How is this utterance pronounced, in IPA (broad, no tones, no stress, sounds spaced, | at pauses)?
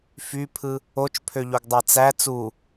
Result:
f y pʰ ɯ | o t͡ʃ pʰ ø ʎ o ɡ dˤ æ t͡s æ t͡s u